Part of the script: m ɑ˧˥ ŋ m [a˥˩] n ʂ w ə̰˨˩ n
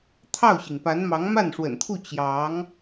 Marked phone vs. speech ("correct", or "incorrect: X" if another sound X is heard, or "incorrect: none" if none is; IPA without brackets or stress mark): correct